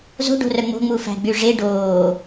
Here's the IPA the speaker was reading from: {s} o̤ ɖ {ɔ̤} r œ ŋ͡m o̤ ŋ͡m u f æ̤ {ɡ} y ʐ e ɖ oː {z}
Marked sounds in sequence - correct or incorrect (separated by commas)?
incorrect, incorrect, incorrect, incorrect